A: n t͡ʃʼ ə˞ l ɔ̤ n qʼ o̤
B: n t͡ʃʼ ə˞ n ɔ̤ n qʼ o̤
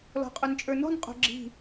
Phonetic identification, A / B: B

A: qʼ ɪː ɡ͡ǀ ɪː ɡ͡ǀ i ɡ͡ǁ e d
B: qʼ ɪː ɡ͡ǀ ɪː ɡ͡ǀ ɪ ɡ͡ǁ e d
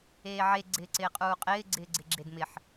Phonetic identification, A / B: B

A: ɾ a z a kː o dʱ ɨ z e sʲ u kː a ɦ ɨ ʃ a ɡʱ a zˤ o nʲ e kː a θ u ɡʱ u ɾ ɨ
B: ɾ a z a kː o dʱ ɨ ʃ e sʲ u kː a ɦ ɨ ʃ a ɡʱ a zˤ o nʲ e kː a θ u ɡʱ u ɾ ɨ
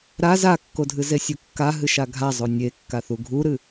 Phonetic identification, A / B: A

